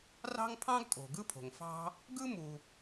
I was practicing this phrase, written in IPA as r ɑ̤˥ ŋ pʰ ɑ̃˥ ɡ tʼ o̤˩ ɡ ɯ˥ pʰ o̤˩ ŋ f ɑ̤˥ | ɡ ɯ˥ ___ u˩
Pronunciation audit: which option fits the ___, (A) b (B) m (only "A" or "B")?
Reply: B